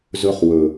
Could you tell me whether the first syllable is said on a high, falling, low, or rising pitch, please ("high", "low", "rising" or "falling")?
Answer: high